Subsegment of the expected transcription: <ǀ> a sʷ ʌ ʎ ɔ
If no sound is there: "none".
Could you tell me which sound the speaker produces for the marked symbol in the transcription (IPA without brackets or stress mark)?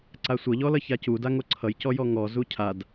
ǀ